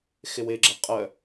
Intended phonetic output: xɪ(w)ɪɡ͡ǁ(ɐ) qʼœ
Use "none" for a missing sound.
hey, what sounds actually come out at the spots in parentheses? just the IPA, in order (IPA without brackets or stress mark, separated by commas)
w, ɐ